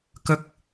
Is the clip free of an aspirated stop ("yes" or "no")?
yes